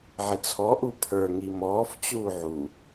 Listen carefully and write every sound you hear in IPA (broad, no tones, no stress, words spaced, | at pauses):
ʕɪt͡sʰɔ ʔupʰə˞ ŋimɔːf t͡ɕuːʕu